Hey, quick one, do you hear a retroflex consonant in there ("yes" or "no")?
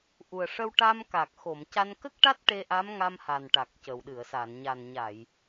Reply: yes